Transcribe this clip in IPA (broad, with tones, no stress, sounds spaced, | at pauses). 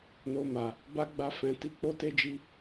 n o˦ m a˧ | b a˦ ɡ͡b a˦ f ɛ̃˧ t i˦ k͡p o˦ t e˦ d͡ʒ i˦